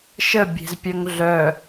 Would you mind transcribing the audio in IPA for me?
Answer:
ʃə bʲe̤zpʲœŋɮœ

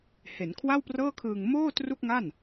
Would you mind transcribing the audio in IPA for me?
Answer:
he˩˦nkʰwa˥˩wprɤː˥˩kʰɯː˧ŋ moː˥˩tru˥˩k̚ŋa˥˩n

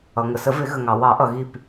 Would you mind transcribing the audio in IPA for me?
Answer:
ʌ˩ŋə˩sə˨˩˦ vɪ˨˩˦ɣə˩ŋɑ˩ wɑ˨˩˦ʔʌ˩ɣi˧˩p

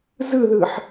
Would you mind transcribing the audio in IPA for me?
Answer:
zɯðɯħ

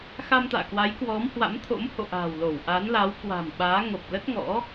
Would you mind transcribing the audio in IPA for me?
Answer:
xa˧mt̪a̰ː˧˨kwa˨˦j kwɔ˨˦mhwa̰˧˥mt̪ʰo̰˧˥m ho̰˧˨ ʔa̤ː˨˩wlo˧˩wʔa˨˦n la˨˦wkwa̤˨˩mɓaː˨˦ŋo˨˩p̚ lə˦˥t̚ŋɔ̰˧˥

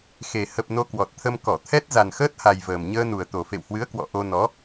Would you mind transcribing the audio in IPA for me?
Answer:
xe˨˩ hə˨˩p̚ no˧kwɔ˨˩t̚t̪ʰə˧m kɔ˧˩t̪ʰɛ˦˥t̚ za˨˩nxəː˦˥t̚ha˨˩j vəː˨˩mɲəː˧nu˨˩ə̯ t̪o˨˩fḛ˧˨whwɨ˨˦ə̯ kwɔ̰˧˨ʔo˧ nɔ˨˦

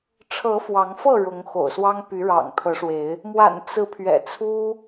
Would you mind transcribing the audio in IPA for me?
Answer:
ʈ͡ʂʰɤ˨˦ fwɑ˨˦ŋfɤ˥˨ ɻʊ˨˦ŋxo̰˨˩ʊ̯swɑ˦ŋ py˨˦ɻɑ̰˨˩ŋt̪ʰɤ˨˦ʂwe˨˦ɪ̯ | mwa̰˨˩n t͡sɹ̩˨˦ pʰɥɛ̰˨˩t͡sʰu˦

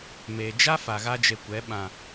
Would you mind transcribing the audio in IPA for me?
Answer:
meː˨d͡ʒa˦fa˨ ɣa˦d͡ʒe˧kʷɛ˨˦ ɓã˨

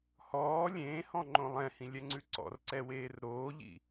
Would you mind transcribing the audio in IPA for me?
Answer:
hɔː lʲẽːhɔ̃ŋ͡ǃõ lˠɛ̃hĩlʲɛŋ͡ǀʉ ǀɔ̰rǀɛweːr ɾoːʎḭ

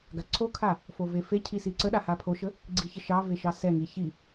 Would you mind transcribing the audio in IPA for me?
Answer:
ɡaǀʰokʰa | fovefecʰi siǀəɗa hapʰoʃə | ɡ͡ǀiçəʃɑve ʃɑsɛŋi çi

